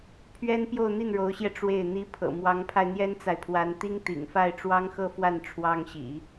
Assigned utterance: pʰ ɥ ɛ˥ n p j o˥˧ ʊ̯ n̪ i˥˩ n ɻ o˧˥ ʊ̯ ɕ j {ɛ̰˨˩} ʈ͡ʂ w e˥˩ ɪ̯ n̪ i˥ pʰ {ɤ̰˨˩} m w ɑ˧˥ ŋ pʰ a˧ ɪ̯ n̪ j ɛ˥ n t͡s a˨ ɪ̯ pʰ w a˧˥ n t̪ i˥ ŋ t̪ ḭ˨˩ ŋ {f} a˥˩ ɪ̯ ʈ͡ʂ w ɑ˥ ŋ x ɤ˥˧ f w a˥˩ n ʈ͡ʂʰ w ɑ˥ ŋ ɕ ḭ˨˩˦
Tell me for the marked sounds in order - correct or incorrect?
incorrect: ɛ˧, correct, correct

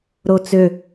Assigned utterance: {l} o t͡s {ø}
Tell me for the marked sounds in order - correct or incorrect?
incorrect: ɾ, correct

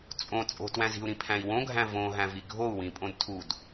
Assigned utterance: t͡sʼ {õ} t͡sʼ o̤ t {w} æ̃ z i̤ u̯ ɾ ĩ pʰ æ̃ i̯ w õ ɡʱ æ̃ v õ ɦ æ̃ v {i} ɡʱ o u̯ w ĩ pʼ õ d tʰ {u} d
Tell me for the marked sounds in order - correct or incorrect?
correct, correct, correct, correct

